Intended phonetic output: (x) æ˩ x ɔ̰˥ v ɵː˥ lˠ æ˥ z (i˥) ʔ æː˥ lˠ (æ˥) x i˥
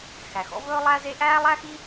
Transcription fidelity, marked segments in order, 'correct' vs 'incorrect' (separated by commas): correct, incorrect, correct